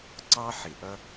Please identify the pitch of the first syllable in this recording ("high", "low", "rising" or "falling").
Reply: high